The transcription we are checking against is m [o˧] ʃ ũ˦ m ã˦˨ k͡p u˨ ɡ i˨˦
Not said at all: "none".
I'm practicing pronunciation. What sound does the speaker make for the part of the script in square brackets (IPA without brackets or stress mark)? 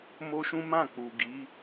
o˦